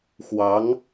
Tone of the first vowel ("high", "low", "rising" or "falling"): rising